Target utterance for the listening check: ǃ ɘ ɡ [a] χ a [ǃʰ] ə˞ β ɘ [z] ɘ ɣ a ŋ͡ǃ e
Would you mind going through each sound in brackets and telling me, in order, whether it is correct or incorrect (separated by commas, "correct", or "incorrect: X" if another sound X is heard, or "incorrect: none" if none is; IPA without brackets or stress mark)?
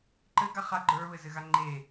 correct, incorrect: ɡ͡ǃ, correct